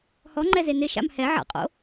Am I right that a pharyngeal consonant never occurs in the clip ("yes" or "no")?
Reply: no